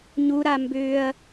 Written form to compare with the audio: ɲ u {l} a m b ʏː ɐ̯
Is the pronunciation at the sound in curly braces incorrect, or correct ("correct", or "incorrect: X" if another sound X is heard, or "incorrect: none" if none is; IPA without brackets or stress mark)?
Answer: incorrect: ɾ